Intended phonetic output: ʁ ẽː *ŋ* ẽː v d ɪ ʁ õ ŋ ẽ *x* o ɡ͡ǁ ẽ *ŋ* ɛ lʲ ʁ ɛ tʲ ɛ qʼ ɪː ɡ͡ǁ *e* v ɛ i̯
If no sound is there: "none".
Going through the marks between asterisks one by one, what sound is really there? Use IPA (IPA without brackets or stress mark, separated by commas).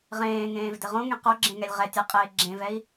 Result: ŋ, q, ŋ, ẽ